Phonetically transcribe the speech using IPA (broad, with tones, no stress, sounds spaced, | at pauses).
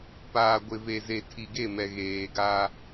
p aː˨ ɡʷ ɪ˨ v e˨ z e˨ tʰ i˨ ɡ e˦˨ m ɛ˨ ɣ eː˨ ɡ a˦